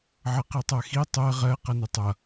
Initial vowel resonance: oral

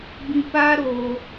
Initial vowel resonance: nasal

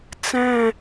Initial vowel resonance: nasal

